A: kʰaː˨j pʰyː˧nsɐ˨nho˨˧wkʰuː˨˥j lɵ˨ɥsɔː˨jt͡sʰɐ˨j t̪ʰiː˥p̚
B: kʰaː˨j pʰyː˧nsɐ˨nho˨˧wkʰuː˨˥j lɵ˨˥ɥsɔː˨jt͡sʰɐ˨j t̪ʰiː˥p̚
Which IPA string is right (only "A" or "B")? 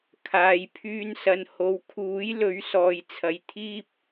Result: B